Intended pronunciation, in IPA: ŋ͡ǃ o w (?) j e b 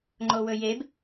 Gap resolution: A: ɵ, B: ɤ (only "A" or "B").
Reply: A